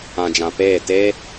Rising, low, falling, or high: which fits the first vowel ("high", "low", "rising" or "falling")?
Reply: low